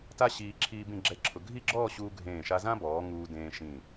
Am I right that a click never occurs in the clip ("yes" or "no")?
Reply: no